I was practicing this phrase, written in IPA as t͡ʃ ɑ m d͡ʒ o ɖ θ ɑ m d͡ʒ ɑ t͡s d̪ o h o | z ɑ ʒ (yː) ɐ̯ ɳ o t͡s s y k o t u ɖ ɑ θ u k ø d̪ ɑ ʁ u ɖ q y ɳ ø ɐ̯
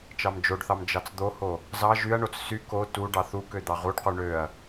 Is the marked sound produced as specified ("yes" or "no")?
no